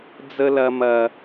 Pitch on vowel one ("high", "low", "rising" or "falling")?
high